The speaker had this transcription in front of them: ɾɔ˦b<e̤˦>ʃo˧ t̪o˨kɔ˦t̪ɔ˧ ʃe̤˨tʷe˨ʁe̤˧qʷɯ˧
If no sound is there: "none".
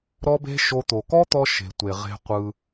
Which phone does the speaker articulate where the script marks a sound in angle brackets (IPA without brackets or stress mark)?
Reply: e̤˦